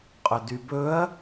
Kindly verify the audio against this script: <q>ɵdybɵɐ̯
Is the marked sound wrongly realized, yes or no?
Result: yes